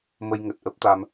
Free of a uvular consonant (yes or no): yes